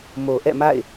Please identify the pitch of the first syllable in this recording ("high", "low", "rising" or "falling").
low